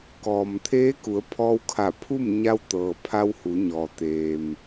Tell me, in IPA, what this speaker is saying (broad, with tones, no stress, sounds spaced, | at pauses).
k ɔː˩ m t̪ʰ eː˧˥ k u˩˧ ə̯ pʰ ɔː˧ w kʰ a˧˩ pʰ u˥˨ m ɲ a˧ w t̪ ɤː˩ pʰ a˧ w h u˩˧ ɲ ɔː˩ t̪ eː˩ m